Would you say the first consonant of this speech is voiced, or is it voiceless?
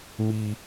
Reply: voiced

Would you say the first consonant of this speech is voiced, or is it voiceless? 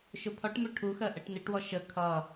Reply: voiceless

